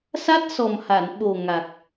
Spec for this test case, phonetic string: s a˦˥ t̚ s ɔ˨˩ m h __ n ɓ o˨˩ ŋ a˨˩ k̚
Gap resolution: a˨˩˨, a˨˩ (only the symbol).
a˨˩˨